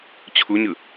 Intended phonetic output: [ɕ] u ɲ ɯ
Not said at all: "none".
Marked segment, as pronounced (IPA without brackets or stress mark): t͡ɕʰ